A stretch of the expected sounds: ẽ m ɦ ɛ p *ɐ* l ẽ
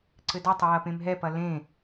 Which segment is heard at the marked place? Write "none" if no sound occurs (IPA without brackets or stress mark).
ɐ